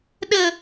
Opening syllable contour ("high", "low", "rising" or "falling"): high